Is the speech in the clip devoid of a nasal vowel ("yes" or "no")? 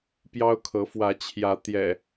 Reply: yes